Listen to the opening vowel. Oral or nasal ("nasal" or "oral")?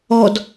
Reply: oral